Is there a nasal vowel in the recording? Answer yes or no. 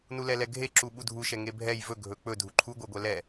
no